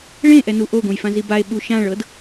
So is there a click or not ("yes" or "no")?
no